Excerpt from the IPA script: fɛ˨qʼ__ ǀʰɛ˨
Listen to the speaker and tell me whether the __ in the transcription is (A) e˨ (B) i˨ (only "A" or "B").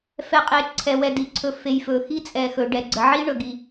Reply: A